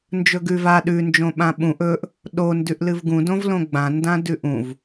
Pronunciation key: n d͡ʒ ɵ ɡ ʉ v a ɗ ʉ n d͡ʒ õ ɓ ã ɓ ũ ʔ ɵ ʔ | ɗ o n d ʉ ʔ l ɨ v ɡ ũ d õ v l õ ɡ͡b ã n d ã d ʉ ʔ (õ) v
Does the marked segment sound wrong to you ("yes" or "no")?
yes